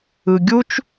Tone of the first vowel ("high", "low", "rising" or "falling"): low